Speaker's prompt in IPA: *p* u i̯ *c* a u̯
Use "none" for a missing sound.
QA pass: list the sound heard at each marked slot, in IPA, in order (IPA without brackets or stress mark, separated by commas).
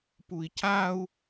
p, c